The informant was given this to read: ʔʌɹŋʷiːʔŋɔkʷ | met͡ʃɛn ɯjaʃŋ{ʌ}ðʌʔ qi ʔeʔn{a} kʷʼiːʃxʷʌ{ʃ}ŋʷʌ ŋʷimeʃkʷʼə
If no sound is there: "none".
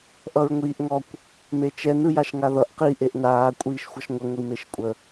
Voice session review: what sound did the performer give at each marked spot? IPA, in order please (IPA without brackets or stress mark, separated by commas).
a, aː, ʃ